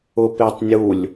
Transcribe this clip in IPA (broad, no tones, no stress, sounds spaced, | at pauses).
ʊ p e tˤ nʲ u lʲ